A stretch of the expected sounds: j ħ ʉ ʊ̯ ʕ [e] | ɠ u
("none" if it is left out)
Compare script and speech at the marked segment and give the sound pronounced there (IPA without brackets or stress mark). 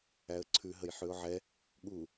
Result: ɛ